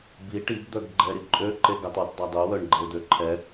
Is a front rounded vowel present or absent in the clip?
present